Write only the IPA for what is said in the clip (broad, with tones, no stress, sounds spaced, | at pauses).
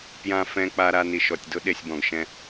p j ã˧ f ɛ̃˧ k͡p a˧ ɾ a˧ n i˨ ʃ ɔ˨ tʲ d ʊ˦ ɗ e˨ sʲ b ɔ̃˨ ɡ ʃ ɛ̃˧